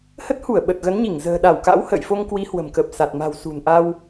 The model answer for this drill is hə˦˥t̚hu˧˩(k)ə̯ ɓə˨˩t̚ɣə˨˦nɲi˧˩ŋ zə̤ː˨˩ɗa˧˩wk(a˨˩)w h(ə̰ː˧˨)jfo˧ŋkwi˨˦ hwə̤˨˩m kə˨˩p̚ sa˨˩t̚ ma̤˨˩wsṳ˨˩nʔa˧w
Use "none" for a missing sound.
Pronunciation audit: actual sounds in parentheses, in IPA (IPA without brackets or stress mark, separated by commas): none, a̰˧˥, ə̰ː˧˨